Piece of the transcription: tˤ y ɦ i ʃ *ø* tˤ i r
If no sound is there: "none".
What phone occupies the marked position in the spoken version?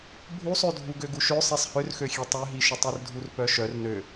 u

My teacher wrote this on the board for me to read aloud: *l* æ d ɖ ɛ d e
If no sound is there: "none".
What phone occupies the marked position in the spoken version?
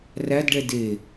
r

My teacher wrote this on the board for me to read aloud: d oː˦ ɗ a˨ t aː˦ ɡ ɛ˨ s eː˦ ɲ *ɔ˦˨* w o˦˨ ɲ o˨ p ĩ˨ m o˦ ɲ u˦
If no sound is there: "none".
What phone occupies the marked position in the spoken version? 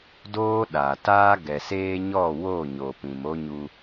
ɔ˦˨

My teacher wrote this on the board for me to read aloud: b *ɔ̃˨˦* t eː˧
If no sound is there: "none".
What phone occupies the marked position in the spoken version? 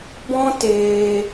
ɔ̃˦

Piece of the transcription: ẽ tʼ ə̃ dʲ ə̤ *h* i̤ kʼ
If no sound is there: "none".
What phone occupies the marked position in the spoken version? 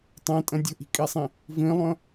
ʔ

